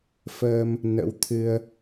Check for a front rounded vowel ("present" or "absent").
absent